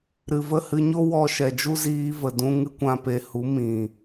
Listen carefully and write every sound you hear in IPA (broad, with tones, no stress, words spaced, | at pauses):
ɾɨ˨və˦˨ hɨ˧ɲo˦ wɔ˧ʃɛ˨d͡ʒu˦ ziː˧və˨dũ˧ ŋɨ˦kʷã˧pe˧ hu˨˦ mĩ˨